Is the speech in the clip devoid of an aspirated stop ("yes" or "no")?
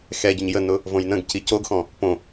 yes